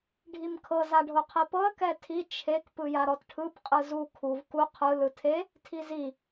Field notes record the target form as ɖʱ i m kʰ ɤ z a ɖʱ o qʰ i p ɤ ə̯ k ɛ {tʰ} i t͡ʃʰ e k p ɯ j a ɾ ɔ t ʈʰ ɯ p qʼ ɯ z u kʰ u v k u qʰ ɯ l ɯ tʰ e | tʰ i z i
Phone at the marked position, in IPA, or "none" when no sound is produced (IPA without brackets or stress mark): tʰ